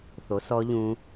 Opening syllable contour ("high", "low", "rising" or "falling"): rising